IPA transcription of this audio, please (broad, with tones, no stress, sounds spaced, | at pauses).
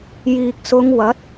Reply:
j iː˨ k̚ s ʊ˨˧ ŋ w ɐ˨˥ t̚